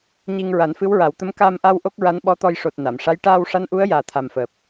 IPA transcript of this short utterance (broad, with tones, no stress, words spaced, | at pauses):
ɲi˧ŋ ɹa˨˩˦nfɨ˧˥wɹa˨˩˦wt̪ə˧˥m kaː˧mʔa˧w ʔo˦˥k̚ɹa˧˥nɓɔ˧˥t̪ɔ˧j ʂo˨˩t̚ na˨˩˨mʂa˧˥j ʈaː˧w ʂa˧˥nʔu˧˥ə̯ jaː˨˩t̪ʰa˨˩mfəː˨˩p̚